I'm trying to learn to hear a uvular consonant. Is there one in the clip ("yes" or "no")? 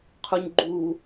yes